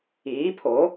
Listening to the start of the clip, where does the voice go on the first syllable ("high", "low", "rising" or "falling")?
rising